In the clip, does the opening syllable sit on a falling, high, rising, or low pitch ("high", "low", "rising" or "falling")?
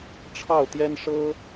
falling